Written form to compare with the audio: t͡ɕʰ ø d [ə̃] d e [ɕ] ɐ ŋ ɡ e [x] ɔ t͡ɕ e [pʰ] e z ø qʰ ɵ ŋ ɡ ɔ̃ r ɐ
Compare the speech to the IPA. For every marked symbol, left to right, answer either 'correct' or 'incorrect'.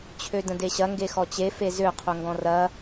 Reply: correct, correct, correct, incorrect

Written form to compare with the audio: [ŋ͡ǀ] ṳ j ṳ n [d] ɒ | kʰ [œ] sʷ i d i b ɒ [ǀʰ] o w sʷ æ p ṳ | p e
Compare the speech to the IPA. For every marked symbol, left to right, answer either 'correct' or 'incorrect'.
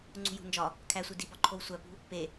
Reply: correct, incorrect, incorrect, incorrect

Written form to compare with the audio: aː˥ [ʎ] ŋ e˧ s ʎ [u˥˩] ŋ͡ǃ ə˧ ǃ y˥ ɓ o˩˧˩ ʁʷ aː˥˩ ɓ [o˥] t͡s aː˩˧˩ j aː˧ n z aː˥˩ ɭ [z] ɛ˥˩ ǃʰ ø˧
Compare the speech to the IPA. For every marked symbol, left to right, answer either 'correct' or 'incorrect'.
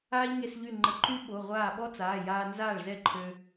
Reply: correct, incorrect, incorrect, correct

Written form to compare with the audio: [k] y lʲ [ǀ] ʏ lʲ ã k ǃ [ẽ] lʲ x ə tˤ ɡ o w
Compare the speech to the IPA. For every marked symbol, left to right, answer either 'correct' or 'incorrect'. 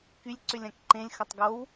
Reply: correct, correct, correct

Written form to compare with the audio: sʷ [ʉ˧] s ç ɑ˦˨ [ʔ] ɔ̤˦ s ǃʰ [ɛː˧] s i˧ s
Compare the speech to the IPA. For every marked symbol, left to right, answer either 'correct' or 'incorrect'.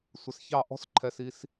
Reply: incorrect, correct, incorrect

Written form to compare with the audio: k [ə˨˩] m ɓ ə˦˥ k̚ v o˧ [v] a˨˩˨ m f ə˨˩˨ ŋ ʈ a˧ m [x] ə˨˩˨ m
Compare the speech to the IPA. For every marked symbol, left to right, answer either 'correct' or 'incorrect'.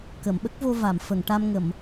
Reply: incorrect, correct, incorrect

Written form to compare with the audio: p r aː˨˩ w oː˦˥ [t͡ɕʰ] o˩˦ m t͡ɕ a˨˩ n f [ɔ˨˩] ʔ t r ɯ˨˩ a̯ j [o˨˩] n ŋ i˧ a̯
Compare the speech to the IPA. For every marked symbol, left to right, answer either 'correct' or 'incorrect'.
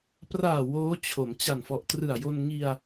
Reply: correct, correct, incorrect

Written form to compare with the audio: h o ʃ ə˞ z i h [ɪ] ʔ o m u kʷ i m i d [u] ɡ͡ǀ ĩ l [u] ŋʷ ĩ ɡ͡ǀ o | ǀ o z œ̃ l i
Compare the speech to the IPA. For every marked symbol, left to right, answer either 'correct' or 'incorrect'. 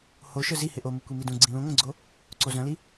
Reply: correct, incorrect, incorrect

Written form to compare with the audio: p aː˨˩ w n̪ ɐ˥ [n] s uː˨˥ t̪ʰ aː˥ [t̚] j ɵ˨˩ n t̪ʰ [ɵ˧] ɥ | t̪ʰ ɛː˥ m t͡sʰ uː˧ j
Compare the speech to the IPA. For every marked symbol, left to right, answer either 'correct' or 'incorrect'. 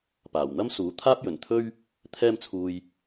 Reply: incorrect, incorrect, incorrect

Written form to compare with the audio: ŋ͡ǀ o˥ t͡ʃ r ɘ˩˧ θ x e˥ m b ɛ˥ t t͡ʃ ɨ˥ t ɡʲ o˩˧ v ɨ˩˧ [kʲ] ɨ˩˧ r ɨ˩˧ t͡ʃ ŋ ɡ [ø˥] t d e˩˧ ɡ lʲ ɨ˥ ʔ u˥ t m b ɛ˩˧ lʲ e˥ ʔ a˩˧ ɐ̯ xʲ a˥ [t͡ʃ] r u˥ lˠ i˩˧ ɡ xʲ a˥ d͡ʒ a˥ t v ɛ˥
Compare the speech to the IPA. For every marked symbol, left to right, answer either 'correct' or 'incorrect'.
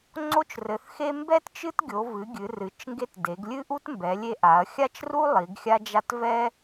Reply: incorrect, incorrect, correct

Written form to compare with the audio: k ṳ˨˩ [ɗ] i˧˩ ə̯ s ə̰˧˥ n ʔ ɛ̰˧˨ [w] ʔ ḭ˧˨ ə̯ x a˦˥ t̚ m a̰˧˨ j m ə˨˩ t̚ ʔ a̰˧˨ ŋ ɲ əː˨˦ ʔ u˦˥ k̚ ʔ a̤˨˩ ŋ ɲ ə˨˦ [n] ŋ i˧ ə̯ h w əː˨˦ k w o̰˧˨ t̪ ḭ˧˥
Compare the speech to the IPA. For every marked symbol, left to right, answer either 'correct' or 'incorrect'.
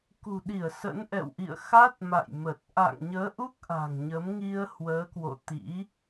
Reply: correct, correct, incorrect

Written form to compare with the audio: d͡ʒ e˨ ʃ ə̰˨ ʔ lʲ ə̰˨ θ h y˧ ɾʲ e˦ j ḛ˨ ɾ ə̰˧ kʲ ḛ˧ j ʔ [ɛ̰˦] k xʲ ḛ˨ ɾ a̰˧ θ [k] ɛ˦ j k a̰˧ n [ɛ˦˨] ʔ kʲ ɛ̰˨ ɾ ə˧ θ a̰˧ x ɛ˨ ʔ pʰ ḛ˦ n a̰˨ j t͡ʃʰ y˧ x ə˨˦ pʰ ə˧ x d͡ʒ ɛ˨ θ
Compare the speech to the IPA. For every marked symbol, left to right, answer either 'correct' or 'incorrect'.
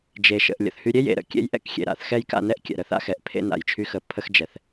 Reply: correct, incorrect, incorrect

